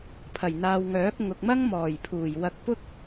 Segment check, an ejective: absent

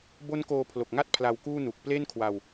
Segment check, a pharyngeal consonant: absent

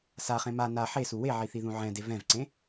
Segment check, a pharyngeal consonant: present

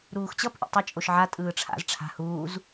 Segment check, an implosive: absent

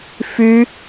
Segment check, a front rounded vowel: present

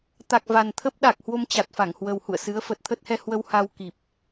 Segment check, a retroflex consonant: absent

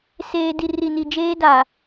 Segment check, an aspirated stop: absent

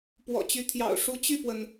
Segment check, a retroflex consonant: present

